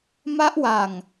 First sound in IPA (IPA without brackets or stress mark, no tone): m